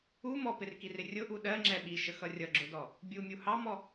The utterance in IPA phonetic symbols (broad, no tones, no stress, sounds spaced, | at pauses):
u m ɔ p ɪ r k i r ɪ rʲ ʊ ʔ u ɗ ɜ ŋ͡ǁ ɛ ɓ i ʃ ə x ʌ rʲ ʌ ɡ͡ǁ ʊ d ɔ | bʲ u mʲ u h ɑ m ɔ